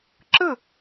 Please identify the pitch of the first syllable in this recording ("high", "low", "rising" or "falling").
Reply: falling